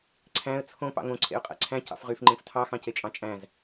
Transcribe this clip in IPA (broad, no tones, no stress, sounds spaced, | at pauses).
ǀʰ æ̃ ə̯ t͡sʰ õ p ɑ̰ ŋ õ ǀʰ ḛ ʊ̯ qʼ æ̰ ǀʰ æ̃ c ɑ̰ f ʁ y f ŋ͡ǃ ẽ f tʰ ɑ x ɑ̃ c e t͡ʃʼ ɑ̃ t͡ʃʼ æ̃ z